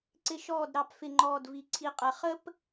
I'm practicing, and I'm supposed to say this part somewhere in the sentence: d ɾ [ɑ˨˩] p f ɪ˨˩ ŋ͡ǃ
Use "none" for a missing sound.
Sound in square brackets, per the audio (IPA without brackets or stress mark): ɑ˨˩